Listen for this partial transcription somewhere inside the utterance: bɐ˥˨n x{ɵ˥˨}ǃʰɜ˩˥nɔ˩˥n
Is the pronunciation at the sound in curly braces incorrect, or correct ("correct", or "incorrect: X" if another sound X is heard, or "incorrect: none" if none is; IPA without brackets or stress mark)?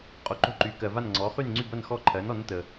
incorrect: ɔ˥˨